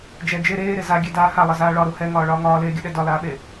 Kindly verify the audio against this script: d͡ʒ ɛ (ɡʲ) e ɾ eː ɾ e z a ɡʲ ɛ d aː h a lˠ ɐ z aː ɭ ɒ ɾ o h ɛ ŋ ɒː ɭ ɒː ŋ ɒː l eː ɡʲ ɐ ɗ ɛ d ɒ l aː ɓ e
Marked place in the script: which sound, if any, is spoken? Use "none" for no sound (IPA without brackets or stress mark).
d͡ʒ